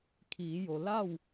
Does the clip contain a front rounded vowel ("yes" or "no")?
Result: no